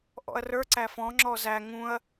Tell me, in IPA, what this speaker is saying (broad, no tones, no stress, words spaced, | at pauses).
ʔɔ̰ɐ̯rə˞ ǀæfɔ̃ ŋ͡ǁɔzæ ŋũɐ̯